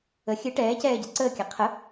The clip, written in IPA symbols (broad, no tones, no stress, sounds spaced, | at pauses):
ə xʲ ɨ ʈ ɛː c ɛː ɟ ɛ ǀ əː kʲ a qʰ ə